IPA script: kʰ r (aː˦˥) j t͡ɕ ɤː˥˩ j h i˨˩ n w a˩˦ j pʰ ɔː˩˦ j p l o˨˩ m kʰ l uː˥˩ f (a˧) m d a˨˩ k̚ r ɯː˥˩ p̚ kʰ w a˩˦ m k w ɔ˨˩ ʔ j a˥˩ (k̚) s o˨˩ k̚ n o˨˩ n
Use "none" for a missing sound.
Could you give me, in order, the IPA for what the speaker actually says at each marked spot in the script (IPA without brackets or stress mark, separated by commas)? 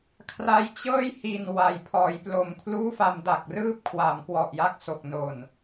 a˦˥, a˧, k̚